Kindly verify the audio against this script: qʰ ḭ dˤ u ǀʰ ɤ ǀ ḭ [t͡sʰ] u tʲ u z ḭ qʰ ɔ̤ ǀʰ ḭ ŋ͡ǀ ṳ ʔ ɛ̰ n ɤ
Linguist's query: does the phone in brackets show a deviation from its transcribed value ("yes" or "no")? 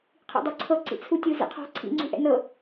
no